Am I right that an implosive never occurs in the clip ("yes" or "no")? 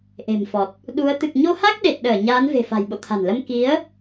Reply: no